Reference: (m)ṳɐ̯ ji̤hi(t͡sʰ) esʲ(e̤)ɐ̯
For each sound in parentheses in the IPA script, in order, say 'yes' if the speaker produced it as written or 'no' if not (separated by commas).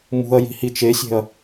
yes, no, yes